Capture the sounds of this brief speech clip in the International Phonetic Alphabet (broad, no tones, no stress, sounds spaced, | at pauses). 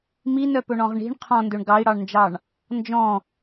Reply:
m i n œ p ɵ ɳ ɔ̃ ʁ ɳ i̤ ɳ qʰ ɔ̃ n d ø ɳ ɡ ɑ i̯ ɽ ɑ ɳ n d͡ʒ ɑ ɳ | n d͡ʒ ɔ̃